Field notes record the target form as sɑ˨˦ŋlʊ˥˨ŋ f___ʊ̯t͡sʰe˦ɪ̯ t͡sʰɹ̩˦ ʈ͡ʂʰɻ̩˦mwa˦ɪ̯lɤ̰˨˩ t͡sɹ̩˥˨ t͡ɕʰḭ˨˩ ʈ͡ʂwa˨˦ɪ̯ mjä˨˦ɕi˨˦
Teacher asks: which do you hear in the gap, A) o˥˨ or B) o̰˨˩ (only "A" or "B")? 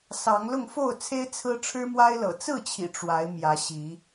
A